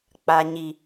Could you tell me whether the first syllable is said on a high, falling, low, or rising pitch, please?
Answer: low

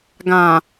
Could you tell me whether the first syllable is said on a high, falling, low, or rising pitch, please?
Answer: low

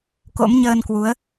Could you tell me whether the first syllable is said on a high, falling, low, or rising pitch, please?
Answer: rising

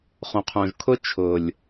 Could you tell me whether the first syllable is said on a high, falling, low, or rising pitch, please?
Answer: low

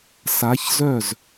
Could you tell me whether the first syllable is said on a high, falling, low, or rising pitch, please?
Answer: rising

